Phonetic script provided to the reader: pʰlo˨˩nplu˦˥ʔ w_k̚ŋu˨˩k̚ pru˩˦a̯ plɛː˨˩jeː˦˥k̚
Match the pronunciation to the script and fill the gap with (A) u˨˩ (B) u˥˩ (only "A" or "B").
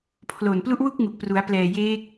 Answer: B